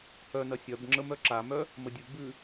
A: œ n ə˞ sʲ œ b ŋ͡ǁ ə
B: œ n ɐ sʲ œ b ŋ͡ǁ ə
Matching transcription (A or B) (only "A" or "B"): B